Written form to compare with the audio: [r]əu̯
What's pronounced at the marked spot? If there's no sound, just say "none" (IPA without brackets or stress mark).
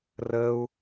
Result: r